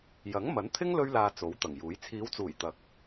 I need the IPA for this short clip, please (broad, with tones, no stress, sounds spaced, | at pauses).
j ɐ˨˥ ŋ m ɐ˨˥ n t̪ʰ ɪ˥ ŋ l ɵ˥ ɥ l aː˧ t͡s o˨˥ w t̪ ɐ˨˩ ŋ j uː˨˥ j t͡sʰ iː˨˧ w t͡s uː˨˩ j t̪ ɐ˨˥ k̚